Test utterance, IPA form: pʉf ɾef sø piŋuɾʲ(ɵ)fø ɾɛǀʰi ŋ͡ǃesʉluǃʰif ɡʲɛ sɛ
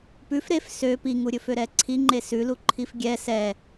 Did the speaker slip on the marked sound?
no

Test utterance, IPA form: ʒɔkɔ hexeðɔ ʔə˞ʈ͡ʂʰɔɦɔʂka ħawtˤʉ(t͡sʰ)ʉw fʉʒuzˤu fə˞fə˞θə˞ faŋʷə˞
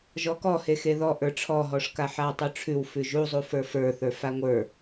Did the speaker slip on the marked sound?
yes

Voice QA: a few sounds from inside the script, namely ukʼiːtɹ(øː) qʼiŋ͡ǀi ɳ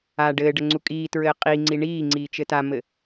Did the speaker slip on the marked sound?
yes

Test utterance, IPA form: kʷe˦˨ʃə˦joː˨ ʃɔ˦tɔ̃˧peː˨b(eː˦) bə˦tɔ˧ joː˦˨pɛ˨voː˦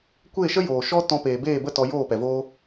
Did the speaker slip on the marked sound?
yes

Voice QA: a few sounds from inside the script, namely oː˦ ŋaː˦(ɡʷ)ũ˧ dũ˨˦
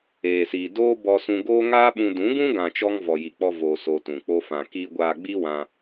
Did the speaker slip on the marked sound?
yes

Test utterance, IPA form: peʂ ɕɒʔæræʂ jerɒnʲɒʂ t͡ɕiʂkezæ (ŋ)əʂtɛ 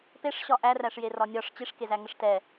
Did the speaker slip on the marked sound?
no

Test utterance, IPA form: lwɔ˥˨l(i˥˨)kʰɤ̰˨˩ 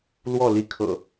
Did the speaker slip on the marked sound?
yes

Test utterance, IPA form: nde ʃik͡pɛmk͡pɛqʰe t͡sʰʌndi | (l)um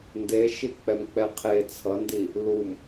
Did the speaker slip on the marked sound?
no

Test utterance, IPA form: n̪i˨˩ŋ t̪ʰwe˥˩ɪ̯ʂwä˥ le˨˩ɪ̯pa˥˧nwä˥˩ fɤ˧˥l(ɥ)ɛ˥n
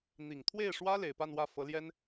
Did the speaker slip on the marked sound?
yes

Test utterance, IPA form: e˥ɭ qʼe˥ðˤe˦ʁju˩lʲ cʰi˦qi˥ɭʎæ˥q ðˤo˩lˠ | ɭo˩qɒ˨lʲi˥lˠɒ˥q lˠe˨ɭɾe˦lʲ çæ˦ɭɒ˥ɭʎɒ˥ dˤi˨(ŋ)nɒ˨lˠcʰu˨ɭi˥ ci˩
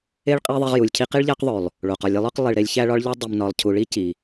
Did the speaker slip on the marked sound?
yes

